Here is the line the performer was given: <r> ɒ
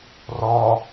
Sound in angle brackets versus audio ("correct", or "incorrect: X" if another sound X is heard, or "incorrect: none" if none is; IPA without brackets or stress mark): correct